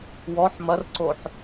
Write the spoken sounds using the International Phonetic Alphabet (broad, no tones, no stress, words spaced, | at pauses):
wɔħ mɐrǀoħ